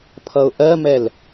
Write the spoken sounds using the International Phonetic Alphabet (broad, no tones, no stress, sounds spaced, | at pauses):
pʰ ʌ ʊ̯ ʔ ɜ m ɛ l